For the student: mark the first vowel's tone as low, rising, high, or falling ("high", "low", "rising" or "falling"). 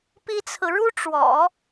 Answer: high